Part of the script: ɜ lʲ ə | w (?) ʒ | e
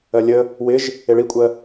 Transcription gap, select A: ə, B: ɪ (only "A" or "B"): B